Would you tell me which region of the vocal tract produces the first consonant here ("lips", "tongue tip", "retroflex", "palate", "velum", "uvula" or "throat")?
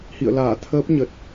throat